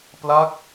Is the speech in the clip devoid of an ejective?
yes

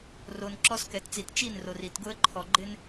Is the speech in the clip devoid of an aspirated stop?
no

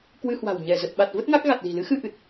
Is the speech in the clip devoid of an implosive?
no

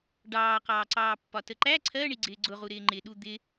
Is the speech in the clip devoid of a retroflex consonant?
no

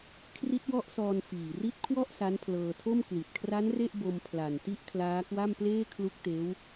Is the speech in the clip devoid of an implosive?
yes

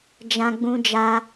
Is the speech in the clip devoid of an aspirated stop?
yes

